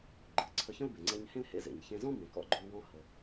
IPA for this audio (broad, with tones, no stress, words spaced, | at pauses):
ɡ͡ǃɨ˩ ǀʰə˧çə̃˥lbe˩ ŋ͡ǀɛ˧ɲ hẽ˥l hḛ˧zḛ˩ɲçẽ˧ zɔ̃˥ bẽ˩kɔ̰˧ɡ͡ǃɵ˧lwɔ̃˧ hə˩